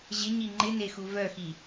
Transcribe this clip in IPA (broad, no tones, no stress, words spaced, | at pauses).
ʑɪɲi ŋ͡ǃɪnexu vœxi